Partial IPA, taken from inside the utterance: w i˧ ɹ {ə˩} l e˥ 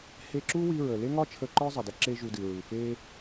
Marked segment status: correct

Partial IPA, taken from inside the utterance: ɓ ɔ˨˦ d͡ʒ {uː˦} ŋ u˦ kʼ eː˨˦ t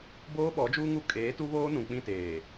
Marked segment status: correct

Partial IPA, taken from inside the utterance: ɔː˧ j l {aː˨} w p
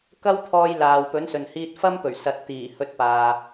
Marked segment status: correct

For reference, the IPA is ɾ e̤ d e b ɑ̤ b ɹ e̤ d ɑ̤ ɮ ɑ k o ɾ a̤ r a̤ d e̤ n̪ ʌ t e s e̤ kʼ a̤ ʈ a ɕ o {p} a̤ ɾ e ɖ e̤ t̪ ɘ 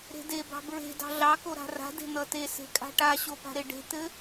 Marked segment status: correct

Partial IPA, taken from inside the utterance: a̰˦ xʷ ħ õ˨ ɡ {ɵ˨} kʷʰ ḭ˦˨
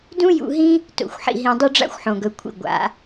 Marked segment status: correct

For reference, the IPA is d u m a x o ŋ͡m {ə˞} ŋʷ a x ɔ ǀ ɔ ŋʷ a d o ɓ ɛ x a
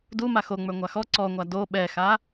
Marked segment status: correct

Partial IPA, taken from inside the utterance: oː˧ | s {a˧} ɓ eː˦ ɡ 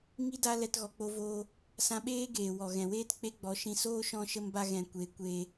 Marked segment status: incorrect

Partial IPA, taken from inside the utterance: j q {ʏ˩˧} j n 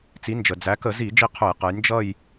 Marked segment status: incorrect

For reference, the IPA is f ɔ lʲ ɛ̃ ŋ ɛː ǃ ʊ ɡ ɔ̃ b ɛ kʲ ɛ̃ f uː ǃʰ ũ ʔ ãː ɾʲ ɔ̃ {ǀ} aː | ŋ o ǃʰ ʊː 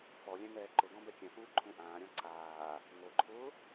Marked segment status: correct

